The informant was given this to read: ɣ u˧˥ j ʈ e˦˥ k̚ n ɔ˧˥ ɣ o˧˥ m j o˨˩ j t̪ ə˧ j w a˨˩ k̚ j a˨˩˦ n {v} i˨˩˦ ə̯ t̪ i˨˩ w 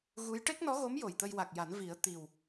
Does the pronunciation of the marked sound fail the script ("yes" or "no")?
no